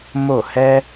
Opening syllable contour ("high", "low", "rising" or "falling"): falling